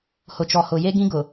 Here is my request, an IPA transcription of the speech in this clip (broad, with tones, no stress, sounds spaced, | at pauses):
h ʊ˨ t͡ʃ ɔ˨ h ʊ˨ j e˦ ɡ ĩ˦ ɡ ʊ˨